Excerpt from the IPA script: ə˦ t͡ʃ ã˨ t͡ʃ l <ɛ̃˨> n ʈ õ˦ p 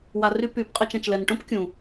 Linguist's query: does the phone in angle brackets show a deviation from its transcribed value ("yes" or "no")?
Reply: yes